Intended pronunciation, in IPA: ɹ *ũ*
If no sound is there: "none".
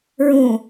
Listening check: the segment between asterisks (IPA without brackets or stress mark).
ũ